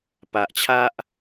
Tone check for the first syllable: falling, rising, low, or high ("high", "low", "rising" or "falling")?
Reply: low